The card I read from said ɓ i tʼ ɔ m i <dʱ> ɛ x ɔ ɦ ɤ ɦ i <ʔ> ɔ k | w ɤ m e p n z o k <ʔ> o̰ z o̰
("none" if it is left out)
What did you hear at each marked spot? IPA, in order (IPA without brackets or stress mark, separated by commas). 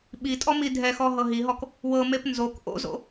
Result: dʱ, ɦ, ʔ